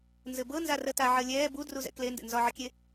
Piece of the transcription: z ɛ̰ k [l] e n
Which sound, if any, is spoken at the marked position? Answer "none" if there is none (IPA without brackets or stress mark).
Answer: l